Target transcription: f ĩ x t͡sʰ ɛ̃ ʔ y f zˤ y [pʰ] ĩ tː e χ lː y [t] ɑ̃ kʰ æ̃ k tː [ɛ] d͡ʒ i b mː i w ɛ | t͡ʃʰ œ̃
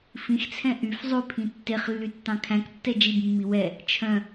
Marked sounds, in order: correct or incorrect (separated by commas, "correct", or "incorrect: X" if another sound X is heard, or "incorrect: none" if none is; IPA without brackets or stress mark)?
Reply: correct, incorrect: tː, correct